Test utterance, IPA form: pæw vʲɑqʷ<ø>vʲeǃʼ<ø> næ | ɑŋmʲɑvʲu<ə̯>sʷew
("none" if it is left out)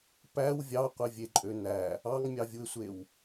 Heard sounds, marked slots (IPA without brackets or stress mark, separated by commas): e, ø, ɪ̯